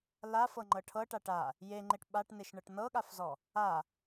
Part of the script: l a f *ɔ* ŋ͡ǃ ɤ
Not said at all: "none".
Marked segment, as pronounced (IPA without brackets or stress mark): ɤ